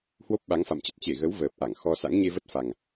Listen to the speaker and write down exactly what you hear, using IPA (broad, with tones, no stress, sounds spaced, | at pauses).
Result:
h w o˦˥ p̚ ɓ a˨˦ ŋ f a̰˧˨ m t͡ɕ ə˦˥ t̚ t͡ɕ e˧˩ ɣ ə˨˦ w v əː˨˩ p̚ ʔ a˧˩ ŋ x ɔ˧ s a̰˧˥ ŋ ɲ e˧ v ə˦˥ t̚ f a˨˩ ŋ